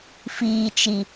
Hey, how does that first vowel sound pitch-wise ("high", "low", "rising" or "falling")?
low